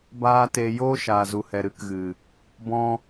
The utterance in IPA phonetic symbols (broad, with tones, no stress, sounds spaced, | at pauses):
b aː˦ t e˧ j oː˦ ʃ aː˨ z u˨ h ɛ˨ ɾ ɨ˦ k ɣ ɨ˨ | b ɔ̃˧